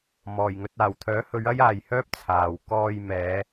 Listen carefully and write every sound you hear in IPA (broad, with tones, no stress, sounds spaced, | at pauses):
m ɔː˨˩ j ŋ ɵ˧ t̚ aː˨˩ w t̪ʰ œː˨˥ h ɵ˨˧ ɥ ɐ˥ j aː˨ j h œː˥ p̚ t͡sʰ aː˨ w k ɔː˧ j m ɛː˨˧